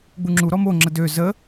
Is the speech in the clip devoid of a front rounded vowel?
no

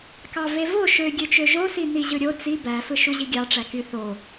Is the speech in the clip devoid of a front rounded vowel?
no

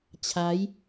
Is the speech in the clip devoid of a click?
yes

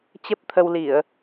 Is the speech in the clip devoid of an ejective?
yes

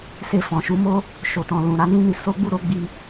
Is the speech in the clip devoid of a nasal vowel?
no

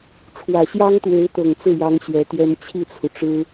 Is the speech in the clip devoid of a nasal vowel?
yes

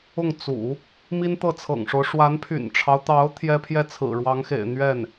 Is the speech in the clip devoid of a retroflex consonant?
no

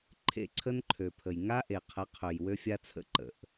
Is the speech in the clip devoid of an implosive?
yes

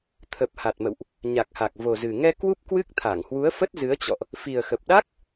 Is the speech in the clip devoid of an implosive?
no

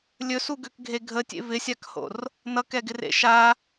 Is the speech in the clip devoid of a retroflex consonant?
yes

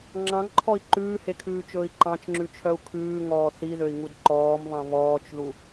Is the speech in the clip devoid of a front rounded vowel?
no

